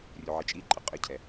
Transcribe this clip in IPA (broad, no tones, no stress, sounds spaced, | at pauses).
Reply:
rʲ u ʕ i t͡ʃʼ i ǃʼ ə qʼ ə cʰ ɛ